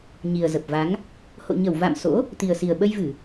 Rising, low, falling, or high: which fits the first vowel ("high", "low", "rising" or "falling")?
low